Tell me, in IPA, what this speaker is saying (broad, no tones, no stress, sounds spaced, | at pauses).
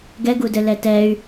ɡ ɛ ɡ u d ɘ l ɛ t ɛ y̯